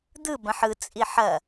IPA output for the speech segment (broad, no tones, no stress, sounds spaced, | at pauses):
d̪ ɯ b ɐ̃ ħ ɯ t͡sʼ i ħ ɐ